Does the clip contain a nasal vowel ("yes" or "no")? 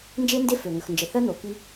no